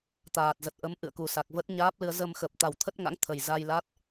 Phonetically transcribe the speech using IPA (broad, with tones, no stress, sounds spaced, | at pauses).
t̪ aː˨˩ t̚ z ə˨˩ t̚ ʔ ə˨˦ m ʔ ɨ̰˧˨ ə̯ k u˨˩ s a˨˩ k̚ v ə˦˥ t̚ ɲ aː˦˥ p̚ l ɨ˧ ə̯ z ə˧ m x ə˨˩ p̚ t̪ a˨˩ w t̪ʰ ə˦˥ t̚ ŋ a̰˧˥ ŋ t̪ʰ ə˨˩ j z a˧ j l a˦˥ t̚